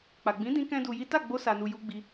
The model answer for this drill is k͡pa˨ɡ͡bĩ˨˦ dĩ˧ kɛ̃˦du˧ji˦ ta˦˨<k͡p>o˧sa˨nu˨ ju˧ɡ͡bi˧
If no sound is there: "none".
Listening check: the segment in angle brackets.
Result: ɡ͡b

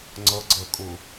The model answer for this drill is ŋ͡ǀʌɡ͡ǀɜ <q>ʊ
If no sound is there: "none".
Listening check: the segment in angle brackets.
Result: kʼ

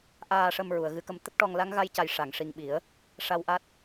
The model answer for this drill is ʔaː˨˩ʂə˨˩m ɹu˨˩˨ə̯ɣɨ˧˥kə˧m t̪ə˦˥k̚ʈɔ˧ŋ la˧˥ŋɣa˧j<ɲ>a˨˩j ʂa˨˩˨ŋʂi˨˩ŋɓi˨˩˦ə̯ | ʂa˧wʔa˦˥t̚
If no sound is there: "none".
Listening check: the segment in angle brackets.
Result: c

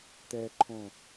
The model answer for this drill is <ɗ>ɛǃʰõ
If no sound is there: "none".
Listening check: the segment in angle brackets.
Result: t̪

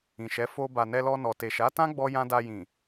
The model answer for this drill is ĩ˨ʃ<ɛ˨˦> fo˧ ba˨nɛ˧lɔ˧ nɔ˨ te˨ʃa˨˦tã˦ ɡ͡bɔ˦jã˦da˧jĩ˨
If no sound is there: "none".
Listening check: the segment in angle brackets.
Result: ɛ˨˦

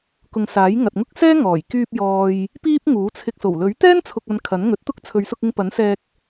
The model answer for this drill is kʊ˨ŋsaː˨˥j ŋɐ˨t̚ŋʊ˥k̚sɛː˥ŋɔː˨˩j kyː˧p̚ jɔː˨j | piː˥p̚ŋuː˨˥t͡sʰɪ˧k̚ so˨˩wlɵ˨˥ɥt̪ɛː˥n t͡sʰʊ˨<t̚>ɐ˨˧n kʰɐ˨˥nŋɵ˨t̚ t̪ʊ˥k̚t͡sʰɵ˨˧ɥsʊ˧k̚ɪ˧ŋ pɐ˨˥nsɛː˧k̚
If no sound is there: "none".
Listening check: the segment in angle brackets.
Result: k̚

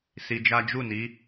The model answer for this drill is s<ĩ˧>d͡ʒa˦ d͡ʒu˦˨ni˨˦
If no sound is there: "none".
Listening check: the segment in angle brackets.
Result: i˧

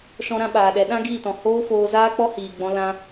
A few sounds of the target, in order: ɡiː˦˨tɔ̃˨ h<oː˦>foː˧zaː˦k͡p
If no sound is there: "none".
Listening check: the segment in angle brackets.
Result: oː˦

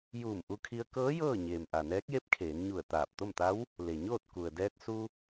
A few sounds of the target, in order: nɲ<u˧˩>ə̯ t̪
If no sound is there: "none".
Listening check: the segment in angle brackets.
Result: u˧˩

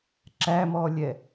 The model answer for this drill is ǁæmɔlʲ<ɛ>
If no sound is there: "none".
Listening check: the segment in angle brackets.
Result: ɛ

